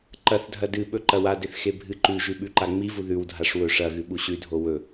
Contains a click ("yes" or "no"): yes